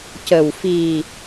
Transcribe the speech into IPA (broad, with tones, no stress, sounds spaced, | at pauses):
c ə˨˩ w f i˨˩